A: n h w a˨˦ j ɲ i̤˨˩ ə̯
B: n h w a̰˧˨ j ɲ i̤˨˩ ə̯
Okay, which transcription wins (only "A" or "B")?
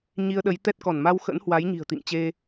A